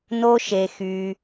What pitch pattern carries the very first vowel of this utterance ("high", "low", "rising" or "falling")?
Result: high